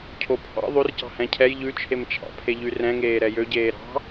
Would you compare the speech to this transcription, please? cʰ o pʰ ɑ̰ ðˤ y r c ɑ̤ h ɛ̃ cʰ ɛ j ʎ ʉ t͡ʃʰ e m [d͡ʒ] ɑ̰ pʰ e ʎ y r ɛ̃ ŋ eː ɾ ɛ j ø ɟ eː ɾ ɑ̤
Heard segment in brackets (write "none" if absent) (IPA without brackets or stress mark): t͡ʃʰ